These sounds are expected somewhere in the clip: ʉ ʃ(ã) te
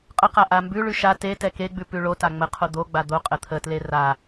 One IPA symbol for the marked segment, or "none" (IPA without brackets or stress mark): a